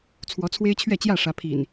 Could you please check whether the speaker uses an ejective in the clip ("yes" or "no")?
no